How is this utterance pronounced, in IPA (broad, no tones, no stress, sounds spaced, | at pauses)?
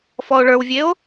f ɔ o̯ ɭ ə˞ w vʲ e o̯